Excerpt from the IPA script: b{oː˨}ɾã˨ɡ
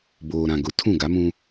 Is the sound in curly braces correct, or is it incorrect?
correct